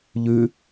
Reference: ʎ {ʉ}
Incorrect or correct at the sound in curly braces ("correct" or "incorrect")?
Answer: correct